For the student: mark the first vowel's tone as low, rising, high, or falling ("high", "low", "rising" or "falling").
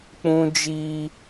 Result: high